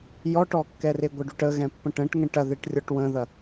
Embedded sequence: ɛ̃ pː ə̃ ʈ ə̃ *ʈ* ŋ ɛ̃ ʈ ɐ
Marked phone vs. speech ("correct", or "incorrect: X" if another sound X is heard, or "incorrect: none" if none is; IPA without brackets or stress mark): correct